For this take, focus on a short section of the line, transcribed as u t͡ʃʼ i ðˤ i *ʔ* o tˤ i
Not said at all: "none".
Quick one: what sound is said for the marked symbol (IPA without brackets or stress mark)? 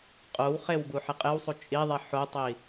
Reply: ħ